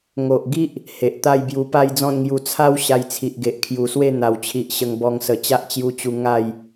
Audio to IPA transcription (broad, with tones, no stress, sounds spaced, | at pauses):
ŋ o˨ ʔ ɡ i˦ ʔ | h e˨ ʔ t̪ a˥˧ j b j u˧ p a˥˧ j d͡z ɔ̃˥˧ n ŋ j u˧ t͡sʰ a˦ w ɕ a˧ j t͡sʰ i˨ ʔ ɡ e˨ ʔ kʰ j u˨˩ s w e˥˧ n̪ a˨˩ w t͡ɕʰ i˨ ʔ ɕ ə˧ ŋ b ɔ˧ ŋ s ə˨˩ t͡ɕ a˦ ʔ t͡ɕ j u˧ t͡ɕ u˧ ŋ a˥˧ j